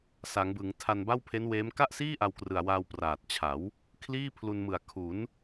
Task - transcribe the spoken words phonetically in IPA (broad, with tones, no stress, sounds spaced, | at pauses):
s a˩˦ ŋ b ɯ˩˦ ŋ tʰ a˧ n b a˥˩ w pʰ e˦˥ n w eː˦˥ m k a˥˩ ʔ s iː˥˩ ʔ a˧ w k r ɯ˨˩ a̯ w aː˧ w p r aː˨˩ t̚ t͡ɕʰ a˩˦ w | kʰ l iː˥˩ pʰ l u˧ n m ɯ˨˩ a̯ kʰ u˩˦ n